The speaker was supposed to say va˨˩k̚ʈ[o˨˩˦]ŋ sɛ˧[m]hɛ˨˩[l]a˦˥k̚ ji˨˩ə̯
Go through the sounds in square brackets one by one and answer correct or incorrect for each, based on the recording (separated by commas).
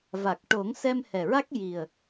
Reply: correct, correct, incorrect